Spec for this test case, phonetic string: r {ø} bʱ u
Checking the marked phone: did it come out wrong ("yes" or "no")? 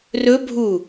yes